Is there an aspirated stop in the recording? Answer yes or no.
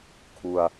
yes